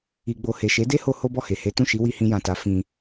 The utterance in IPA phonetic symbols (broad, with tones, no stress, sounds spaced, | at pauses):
i˧ ɡ͡b o˧ h e˨ ʃ e˨˦ d e˦ h o˧ h o˦ b ɔ˦˨ h e˨ h e˨˦ t ũ˦˨ ʃ i˨˦ w i˧ h ĩ˧ j ã˨ t a˨˦ f ĩ˧